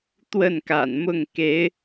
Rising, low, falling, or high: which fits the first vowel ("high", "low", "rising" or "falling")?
falling